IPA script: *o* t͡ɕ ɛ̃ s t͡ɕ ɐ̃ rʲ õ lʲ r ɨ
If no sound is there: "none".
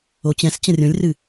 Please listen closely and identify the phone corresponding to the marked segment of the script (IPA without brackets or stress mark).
o